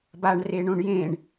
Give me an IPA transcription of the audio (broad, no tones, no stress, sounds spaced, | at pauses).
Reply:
b a ɳ r e ɳ õ ɳ j ẽ ɳ